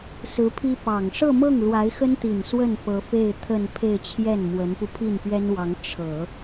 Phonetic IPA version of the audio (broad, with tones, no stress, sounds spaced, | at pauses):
s ɹ̩˧˥ pʰ i˥ p ɑ˨˩ ŋ ʂ ɤ˥˧ m ɤ˥˩ ŋ l w a˧˥ ɪ̯ x ə˥ n t̪ i˨˩ n s w ə˥˩ n p ɤ˧˥ f e˥˧ ɪ̯ t̪ʰ ə˥˧ n pʰ e˥˧ ɪ̯ t͡ɕʰ j ɛ˥˩ n m w ə˧˥ n p u˧ pʰ i˥˩ n p ɥ ɛ˥ n w ɑ˧˥ ŋ ʈ͡ʂʰ ɤ˨˩˦